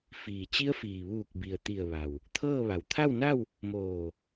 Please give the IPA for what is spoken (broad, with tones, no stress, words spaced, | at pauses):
fiː˩t͡ɕi˧˥ə̯fiː˩ ʋuː˧˩k̚bi˩ə̯ t̪i˧˩ə̯ʋa˩w | t̪ʰɤː˥˨ʋa˩˧w t̪ʰa˥˨wna˥˨w | moː˧˩